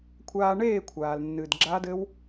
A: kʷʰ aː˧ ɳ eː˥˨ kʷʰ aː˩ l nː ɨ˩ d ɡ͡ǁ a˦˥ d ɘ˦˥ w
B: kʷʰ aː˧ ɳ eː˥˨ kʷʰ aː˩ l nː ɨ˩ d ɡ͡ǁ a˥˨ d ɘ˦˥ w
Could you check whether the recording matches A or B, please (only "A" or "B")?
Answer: A